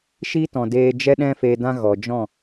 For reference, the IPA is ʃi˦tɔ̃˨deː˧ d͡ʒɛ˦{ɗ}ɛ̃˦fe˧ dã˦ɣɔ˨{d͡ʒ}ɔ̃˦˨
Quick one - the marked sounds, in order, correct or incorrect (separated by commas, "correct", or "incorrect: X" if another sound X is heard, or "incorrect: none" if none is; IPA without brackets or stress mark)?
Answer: correct, correct